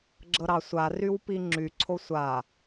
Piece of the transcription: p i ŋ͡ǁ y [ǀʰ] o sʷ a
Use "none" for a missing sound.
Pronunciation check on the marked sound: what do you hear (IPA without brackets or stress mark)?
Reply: ǀʰ